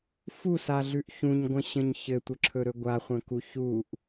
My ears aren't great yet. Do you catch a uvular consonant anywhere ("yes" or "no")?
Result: yes